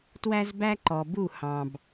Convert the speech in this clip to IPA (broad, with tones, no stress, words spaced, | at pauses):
twæ˦zbæ˦ǃɔ˨bu˦˨ hɑ̃˨b